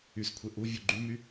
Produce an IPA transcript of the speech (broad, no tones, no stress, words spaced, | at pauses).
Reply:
yskʷʰe ʔuvʲu ɡ͡ǃymy